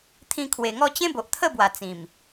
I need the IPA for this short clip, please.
t̪ʰ ĩ˧ kʰ w e˨˩ ŋ ɔ˥˧ t͡ɕ ẽ˦ b o˨ ʔ t̪ʰ ə˥˧ b w a˨˩ t͡s ĩ˨˩ m

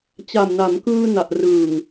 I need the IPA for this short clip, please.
t͡ɕ a˨˩ m n a˩˦ m k ɯː˧ n a˨˩ ʔ r ɯː˨˩ ŋ

